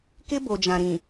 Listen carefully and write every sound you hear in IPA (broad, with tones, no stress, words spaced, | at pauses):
kɪ˦bo˨d͡ʒã˨ɾĩ˨